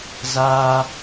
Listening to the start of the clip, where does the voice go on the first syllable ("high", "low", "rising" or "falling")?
high